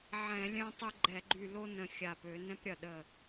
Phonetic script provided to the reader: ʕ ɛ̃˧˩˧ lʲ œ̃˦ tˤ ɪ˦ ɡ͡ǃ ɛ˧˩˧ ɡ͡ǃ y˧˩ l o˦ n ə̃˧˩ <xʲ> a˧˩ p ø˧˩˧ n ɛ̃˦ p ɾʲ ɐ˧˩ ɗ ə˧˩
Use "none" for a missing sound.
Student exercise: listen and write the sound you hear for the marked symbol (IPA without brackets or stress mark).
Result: xʲ